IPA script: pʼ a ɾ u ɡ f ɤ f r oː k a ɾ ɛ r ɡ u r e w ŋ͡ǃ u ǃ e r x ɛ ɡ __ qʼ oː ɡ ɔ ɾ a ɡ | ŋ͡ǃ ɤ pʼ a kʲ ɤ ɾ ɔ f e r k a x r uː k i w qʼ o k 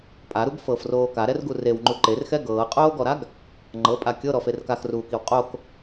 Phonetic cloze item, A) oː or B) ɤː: B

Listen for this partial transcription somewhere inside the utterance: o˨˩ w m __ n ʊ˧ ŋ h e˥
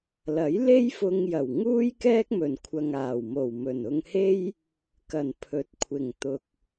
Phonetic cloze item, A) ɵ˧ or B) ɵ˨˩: B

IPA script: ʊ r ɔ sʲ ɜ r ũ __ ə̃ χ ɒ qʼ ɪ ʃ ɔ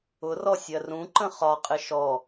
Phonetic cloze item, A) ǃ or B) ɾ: A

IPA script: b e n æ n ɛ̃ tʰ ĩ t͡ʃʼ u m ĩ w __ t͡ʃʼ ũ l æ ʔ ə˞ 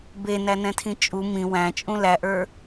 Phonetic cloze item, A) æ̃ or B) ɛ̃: A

